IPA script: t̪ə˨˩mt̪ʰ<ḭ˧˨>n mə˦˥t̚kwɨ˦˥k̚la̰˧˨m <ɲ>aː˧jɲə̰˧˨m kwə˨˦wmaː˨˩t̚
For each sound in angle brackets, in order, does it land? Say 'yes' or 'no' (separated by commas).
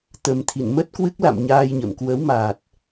yes, yes